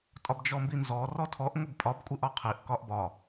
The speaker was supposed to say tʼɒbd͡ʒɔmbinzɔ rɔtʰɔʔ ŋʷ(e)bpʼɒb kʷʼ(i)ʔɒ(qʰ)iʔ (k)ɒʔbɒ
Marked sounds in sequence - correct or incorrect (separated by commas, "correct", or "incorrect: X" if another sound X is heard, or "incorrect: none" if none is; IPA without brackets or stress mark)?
correct, correct, correct, correct